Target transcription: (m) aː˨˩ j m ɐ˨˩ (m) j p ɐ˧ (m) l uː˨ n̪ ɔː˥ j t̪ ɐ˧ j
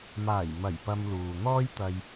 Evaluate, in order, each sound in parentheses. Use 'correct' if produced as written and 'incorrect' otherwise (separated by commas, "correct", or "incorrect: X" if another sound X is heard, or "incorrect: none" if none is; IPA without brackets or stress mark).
correct, incorrect: none, correct